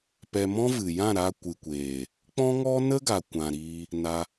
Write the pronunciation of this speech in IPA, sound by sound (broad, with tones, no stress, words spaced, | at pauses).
pɛ˧mɔ̃˦ vɨ˨jã˦˨ ɾa˧kʷɨ˨kʷeː˨ | k͡pɔ̃˦ŋɔ˦nə˦ɡa˨ kʷã˨ ɾiː˧ | na˧